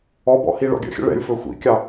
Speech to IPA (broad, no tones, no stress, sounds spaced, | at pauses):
ɔ b ɔ̰ h i ɭ ɔ̰ ɡʲ ə̰ xʲ ə̰ ɭ ɛ̰ lʲ f ɵ xʷ ḭ kʲ ɑ